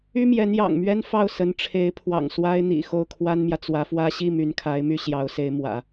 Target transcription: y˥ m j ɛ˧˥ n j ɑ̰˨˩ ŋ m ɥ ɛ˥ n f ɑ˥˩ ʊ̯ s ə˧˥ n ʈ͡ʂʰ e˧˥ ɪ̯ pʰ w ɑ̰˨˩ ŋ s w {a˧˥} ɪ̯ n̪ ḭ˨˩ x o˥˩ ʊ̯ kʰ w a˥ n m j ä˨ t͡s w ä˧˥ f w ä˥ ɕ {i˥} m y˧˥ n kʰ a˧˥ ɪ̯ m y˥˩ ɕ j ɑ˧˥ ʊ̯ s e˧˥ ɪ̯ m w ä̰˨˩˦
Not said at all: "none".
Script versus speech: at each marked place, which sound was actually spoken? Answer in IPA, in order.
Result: a˥, i˥˩

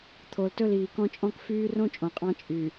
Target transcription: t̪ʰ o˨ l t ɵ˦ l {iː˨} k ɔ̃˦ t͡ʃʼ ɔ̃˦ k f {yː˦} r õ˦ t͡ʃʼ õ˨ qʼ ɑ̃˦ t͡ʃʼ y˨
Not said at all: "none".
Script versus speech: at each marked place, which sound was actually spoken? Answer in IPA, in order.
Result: iː˨, yː˦

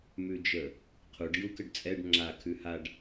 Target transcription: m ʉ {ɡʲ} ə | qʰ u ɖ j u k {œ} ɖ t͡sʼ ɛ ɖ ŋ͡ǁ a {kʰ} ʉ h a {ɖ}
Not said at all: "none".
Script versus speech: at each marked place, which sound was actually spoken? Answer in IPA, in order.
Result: d͡ʒ, ə, kʰ, ɖ

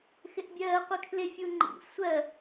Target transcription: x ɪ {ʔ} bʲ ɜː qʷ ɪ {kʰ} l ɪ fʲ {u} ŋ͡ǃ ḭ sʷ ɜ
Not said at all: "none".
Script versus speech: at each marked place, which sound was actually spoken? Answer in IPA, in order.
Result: ʔ, kʰ, u

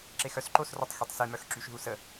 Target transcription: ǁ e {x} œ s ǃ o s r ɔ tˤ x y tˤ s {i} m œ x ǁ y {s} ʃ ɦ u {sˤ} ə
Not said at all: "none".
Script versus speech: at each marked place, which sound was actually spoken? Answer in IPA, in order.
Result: x, i, none, s

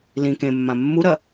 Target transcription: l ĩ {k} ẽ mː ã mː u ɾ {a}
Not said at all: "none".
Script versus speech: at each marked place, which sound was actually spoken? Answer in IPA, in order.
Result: k, ɐ

